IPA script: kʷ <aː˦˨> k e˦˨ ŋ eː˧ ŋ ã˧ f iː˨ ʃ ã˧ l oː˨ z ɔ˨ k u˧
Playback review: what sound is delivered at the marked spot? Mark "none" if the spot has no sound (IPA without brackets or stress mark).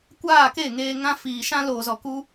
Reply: aː˦˨